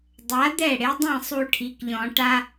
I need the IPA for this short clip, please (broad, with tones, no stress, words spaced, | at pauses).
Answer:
dˤa˨˥d̪ɛ˥˩ ɽe˨˥dˤĩ˥˩ sˤu˦ʈʰi˩˧˩kʎɔ̃˨˩˦ ʈa˦